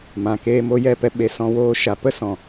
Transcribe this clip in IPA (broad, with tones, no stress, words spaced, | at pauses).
mã˨ keː˧mo˧jɛ˦˨pɛ˧ ɓe˨ sɔ̃˧woː˧ ʃa˨pə˦ sɔ̃˨